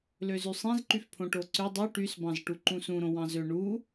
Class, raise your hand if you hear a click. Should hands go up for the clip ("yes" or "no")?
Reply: yes